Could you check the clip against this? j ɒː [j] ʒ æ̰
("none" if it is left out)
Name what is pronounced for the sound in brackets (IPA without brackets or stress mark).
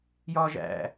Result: none